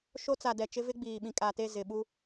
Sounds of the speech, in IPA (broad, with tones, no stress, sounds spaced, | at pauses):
ʃ o˦ t͡s a˨ d ɛ˨ t͡ʃ ɪ˦ v ɪ˦ ɡ͡b iː˨ ɓ ĩ˨ kʼ a˨ t e˦˨ z ɪ˨ ɓ u˦